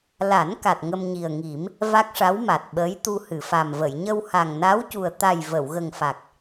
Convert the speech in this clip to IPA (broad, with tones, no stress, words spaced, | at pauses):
la˨˩˦n ka˨˩t̚ŋə˧mɲi˨˩ə̯ŋi˨˩˦m | va˦˥k̚ʂa˧˥wma˨˩t̚ɓəː˧˥j t̪u˧hɨ˨˩˨fa˨˩mvə˨˩˨j ɲə˧wha˨˩ŋna˧˥wcu˨˩ə̯ t̪a˨˩j və˨˩˨wɣə˨˩ŋfa˨˩k̚